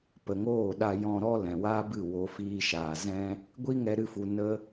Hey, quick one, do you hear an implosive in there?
yes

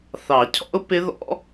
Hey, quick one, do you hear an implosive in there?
no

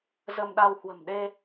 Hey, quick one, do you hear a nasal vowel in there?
no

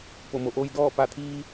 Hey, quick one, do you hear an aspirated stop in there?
yes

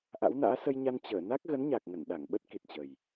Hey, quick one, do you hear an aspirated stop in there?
no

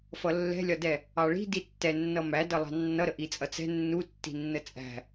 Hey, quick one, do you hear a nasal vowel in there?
no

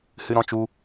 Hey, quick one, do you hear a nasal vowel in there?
yes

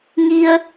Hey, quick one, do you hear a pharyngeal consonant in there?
no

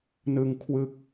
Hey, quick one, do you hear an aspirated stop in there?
yes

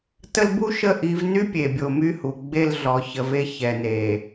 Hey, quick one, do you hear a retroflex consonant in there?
no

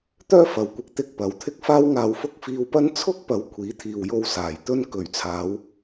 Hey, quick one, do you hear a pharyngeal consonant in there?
no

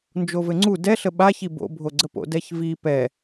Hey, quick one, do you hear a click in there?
yes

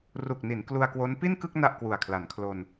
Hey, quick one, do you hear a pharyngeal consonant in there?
no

